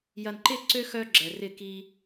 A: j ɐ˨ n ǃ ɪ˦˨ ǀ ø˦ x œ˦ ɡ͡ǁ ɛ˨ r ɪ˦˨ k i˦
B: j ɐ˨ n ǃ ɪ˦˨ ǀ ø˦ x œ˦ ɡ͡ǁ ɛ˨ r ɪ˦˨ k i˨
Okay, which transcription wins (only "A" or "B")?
A